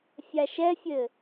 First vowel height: low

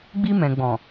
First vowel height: high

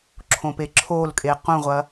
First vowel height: mid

